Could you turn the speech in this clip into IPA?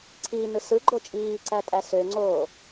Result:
ǀʰ iː n ɯ s ɯ ɡ͡ǃ o t͡ʃʼ iː ǀ æ tʼ æ s ø ŋ͡ǀ oː

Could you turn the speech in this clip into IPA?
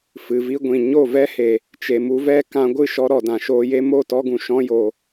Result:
f ɨ˨ v i˦ ɡʷ ĩ˨ ɲ o˦˨ v ɛ˦ h e˨ | t͡ʃ e˨ m u˧ v ɛ˦ k ã˧ ɡʷ ɨ˦˨ ʃ ɔ˧ ɾ ɔ˨ d ã˨ ʃ oː˧ j e˦ m o˦˨ t ɔ˧ ɡ ũ˨ ʃ ɔ̃˧ j oː˨

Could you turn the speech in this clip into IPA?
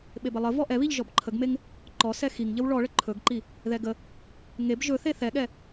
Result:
ɓ e b ə lˠ ə v ɔ ʔ ɛ β i ʎ ʒ ɔ b ǃʰ ə ɡ m e ŋ | ǃ ɔ s ɛ x i ŋ ʎ ə w ɭ ɔ ɭ ə ǃʰ ɵ ɡ ǃ i | ð ɛ ɡ ə | ŋ e b ʒ ɵ θ e θ ɛ ɠ ɛ

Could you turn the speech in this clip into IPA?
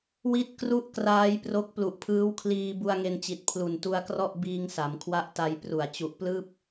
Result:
w i˦˥ t̚ k r u˦˥ ʔ k r aː˦˥ j p r o˦˥ k̚ p l u˨˩ ʔ pʰ ɯː˦˥ w kʰ l iː˧ b u˧ a̯ ŋ e˧ n t͡ɕ i˨˩ t̚ pʰ l u˨˩ n t u˧ a̯ k r ɔ˥˩ ʔ b iː˧ ŋ s a˩˦ m kʰ w a˦˥ ʔ t a˧ j p r u˨˩ a̯ t͡ɕ u˨˩ ʔ p l ɯː˥˩ p̚

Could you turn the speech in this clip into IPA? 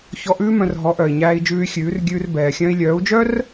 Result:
ç ɔ˧ ʔ ʉː˦ m œ̃˧ r ɦ ɔ˨˦ ʔ œ˨ i̯ ɲ æː˧ i̯ d͡ʒ ʉː˧ y̯ xʲ ʉː˨˦ r ɡʲ ʉː˧ r b ɛː˨ xʲ œ̃˧ i̯ lʲ œː˨˦ u̯ d͡ʒ œ˦ r

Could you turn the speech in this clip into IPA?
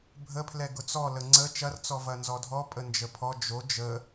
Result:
bʱ ə pʰ l ɛ ɡ ʊ t͡s ɔ l ə ŋ͡ǀ ə t͡ʃ ɐ r t͡s ɔ v ɐ n z ɔ dʱ ɔ pʼ ə n d͡ʒ ə pʰ ɔ d͡ʒ o d͡ʒ ə

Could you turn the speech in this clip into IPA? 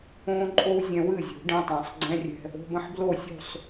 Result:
õː˧ ǃʼ o˧ w zʲ ɛ̃˧ w ɨ˥˩ zʲ ṳ˨˩˦ ɖ ɛ̃˩˧˩ tˤ ə̃ː˨˩˦ sˤ ɡ͡ǀ ɛ̃˧˥˧ rʲ ɛ̤˧ | o̤˩˧˩ b ə̃˥˩ ħ b l o˥˩ sʲ ṳ˥˩ sˤ

